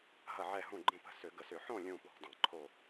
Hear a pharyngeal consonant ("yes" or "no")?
yes